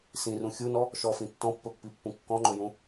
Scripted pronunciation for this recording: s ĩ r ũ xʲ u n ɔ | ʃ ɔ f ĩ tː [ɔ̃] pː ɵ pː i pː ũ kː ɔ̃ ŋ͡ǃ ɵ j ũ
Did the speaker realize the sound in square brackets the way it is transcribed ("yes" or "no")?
yes